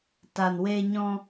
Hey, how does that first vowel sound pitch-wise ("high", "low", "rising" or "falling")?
low